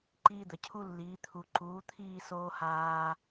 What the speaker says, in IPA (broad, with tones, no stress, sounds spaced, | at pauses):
ǃ iː˦ d̪ ə˨ cʰ u˦ lː iː˨˦ t̪ʰ u˨ ǃ uː˨˦ t̪ʰ iː˦˨ s oː˦ h aː˦